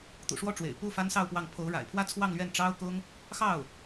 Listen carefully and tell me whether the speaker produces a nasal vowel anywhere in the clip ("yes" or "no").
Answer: no